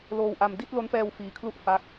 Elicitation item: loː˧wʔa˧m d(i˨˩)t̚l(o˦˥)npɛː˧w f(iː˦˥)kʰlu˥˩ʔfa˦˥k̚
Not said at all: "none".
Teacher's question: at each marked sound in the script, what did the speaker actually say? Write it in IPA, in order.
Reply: i˥˩, o˦˥, iː˦˥

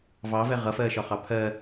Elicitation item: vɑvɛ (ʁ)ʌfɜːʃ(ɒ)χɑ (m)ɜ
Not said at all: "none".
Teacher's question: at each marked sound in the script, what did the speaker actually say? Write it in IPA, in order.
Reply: ʁ, ɒ, pʰ

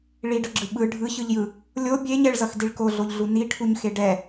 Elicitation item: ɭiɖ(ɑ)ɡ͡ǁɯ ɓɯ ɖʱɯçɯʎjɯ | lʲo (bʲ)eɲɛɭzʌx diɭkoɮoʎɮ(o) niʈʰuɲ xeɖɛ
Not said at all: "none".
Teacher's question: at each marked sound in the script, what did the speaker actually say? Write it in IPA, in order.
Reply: ʌ, bʲ, u

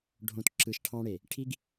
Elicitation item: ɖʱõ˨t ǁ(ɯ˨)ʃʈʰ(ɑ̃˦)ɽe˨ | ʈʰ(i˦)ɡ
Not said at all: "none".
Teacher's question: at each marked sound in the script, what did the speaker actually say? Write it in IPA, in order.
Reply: ɯ˨, ɑ̃˦, i˦

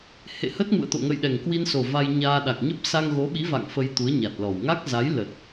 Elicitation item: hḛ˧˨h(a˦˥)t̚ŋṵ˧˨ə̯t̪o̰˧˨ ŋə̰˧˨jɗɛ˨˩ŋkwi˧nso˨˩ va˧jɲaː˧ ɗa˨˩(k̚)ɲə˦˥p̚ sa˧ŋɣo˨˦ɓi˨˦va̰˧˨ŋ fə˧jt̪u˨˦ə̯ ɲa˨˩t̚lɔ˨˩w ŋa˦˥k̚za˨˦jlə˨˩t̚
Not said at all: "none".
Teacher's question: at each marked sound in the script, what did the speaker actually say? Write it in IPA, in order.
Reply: ə˦˥, k̚

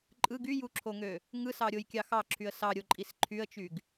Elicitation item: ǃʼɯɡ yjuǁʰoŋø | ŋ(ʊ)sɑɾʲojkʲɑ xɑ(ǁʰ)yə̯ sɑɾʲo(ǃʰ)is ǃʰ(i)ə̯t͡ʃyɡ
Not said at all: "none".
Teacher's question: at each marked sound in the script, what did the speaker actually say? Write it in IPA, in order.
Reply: ɯ, ǁʰ, ǃʼ, y

